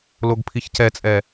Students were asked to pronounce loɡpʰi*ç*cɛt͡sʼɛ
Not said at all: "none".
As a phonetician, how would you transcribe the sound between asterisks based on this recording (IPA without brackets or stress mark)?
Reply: ç